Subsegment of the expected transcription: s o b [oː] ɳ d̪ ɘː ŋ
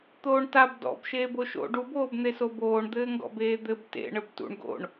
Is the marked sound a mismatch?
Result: no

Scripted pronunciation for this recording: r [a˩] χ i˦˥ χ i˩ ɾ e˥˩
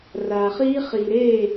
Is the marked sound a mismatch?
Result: no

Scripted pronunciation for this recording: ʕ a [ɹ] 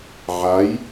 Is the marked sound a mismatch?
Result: yes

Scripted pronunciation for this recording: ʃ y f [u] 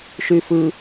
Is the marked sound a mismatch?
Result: yes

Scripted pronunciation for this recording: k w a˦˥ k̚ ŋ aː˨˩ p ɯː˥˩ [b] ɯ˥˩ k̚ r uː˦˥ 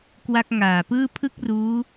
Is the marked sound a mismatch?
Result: yes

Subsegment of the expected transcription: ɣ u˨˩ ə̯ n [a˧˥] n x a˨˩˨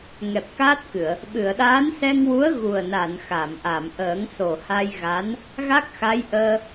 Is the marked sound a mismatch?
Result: yes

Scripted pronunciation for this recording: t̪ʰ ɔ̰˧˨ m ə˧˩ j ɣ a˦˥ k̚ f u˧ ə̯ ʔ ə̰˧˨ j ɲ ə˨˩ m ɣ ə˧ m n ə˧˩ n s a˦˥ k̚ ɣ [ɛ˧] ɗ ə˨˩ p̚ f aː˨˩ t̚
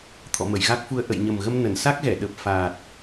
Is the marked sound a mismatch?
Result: yes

